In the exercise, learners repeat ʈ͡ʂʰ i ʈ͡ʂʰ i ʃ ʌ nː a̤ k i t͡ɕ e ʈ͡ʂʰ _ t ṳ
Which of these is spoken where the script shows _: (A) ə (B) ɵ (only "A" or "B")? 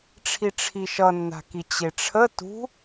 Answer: A